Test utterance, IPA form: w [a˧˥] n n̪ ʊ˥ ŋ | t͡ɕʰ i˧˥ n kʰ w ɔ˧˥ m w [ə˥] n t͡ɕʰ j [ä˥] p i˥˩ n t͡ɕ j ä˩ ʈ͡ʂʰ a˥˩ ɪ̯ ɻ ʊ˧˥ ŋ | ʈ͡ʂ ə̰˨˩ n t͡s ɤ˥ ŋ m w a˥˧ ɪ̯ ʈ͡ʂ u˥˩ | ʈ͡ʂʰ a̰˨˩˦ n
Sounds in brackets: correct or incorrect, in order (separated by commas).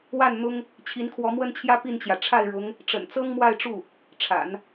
incorrect, correct, correct